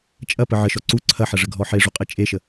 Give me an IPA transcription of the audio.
t͡ʃʼ ɐ p ə ʕ ə ʃ ɔ ǀ u ǀʰ ɐ ħ ɐ ʐ ə ɡʱ ɔ ħ e ʐ u qʼ e t͡ʃʼ e ʃ ə

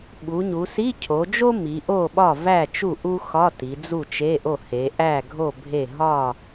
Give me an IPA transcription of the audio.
ɓ u˩˧ ɲ u˩˧ s i˧˥˧ cʰ o˩˧ d͡ʒ o˥ m i˩˧ ʔ o˥˨ ɓ ɒ˥˨ v æ˥˨ t͡ʃ u˥˨ ʔ u˥ x ɒ˧˥˧ t i˩˧ d͡z u˥˨ t͡ʃ e˧˥˧ ʔ o˥˨ h e˩˧ ʔ æ˥˨ ɡʱ o˥˨ bʱ e˥˨ ɦ ɒ˥˨

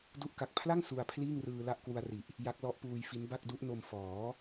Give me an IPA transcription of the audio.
d u˥˩ ʔ k a˨˩ k̚ pʰ l a˥˩ ŋ s u˧ a̯ pʰ l iː˥˩ ŋ r ɯː˧ l a˥˩ ʔ k w u˧ a̯ r i˨˩ ʔ | j a˦˥ k̚ l ɔ˦˥ ʔ p uː˧ j f i˦˥ n b a˥˩ k̚ d u˦˥ ʔ n o˧ m f ɔː˩˦

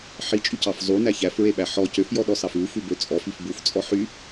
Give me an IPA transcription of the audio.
ħ i t͡ʃʼ y c ɑ f zˤ u n æ ç æ f ɹ e ɓ æ ħ ɔ c ø f j ɔ ɗ ɔ s ɑ f ʉ f ʉ b ø t͡sʼ ɔ f i f b u f t͡sʼ ɔ ħ y

